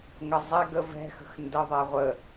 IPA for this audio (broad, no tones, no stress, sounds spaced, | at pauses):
ŋ ə zˤ ɛ ɡ ə v ɛ̤ x ə̤ x n d ə ðˤ ɛ ʁʷ ə